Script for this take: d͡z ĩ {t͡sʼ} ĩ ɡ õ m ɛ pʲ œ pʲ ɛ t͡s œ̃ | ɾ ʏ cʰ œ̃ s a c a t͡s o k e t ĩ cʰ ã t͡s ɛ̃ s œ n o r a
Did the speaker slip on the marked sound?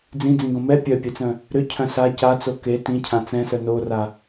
yes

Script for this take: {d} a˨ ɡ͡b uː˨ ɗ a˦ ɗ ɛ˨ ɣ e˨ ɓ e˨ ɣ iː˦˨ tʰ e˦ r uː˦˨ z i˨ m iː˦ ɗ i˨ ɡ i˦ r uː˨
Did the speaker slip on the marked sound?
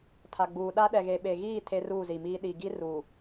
yes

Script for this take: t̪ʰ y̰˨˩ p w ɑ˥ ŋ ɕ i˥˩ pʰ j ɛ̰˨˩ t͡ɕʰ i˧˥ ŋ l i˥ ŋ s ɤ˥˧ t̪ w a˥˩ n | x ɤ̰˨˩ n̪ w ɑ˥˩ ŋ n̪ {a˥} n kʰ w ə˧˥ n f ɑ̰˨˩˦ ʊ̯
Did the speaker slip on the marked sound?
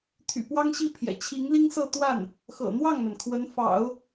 yes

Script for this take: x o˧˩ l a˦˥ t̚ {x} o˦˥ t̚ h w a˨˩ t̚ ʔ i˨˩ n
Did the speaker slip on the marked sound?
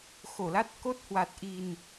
yes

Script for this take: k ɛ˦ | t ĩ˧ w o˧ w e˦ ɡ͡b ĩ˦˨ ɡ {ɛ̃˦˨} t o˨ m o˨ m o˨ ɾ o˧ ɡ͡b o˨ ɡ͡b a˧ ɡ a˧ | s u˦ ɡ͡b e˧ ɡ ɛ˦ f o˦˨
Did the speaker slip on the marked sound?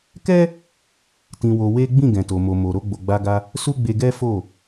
yes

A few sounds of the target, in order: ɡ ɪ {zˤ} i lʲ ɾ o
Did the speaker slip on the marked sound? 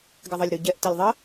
yes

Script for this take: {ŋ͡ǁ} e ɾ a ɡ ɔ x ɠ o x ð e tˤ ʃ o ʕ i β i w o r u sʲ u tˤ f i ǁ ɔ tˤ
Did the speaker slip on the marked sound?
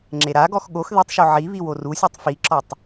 no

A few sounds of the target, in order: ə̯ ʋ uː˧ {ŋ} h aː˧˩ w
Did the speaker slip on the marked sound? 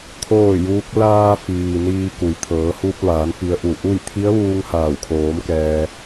no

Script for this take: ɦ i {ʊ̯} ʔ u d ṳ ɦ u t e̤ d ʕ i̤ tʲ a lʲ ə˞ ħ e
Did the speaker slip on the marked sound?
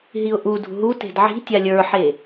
no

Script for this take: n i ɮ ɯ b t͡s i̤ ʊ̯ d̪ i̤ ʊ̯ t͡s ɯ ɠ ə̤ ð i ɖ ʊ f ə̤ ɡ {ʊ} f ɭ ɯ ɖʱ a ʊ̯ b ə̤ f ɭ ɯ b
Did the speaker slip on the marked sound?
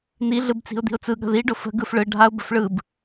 yes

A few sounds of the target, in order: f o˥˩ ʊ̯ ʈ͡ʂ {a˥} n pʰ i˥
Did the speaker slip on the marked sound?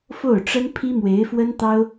yes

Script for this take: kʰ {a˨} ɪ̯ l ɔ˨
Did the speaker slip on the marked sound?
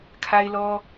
no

